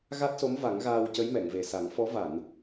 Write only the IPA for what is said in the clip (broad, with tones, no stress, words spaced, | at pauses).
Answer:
ɣa˦˥t̚so˧˥m va˨˩˦ŋɣaː˧w cə˧˥jmɛ˨˩˨ŋ ve˨˩sa˨˩˦ŋ fɔ˧˥ va˨˩˨n